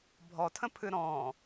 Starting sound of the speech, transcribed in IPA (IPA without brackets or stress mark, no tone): bʱ